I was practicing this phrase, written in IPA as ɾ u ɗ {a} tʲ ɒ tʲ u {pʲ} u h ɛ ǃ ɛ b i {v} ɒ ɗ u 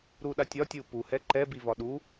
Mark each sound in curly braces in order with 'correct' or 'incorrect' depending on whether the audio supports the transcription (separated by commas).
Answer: correct, incorrect, correct